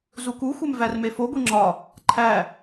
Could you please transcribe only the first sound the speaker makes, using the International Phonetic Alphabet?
z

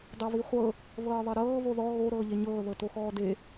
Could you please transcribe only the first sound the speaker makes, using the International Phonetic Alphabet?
dˤ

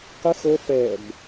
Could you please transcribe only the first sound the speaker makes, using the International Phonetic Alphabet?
q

